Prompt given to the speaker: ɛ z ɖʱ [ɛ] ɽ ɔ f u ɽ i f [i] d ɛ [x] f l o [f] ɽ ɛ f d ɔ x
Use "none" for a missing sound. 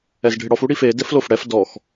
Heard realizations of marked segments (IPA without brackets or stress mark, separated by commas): ɪ, e, none, f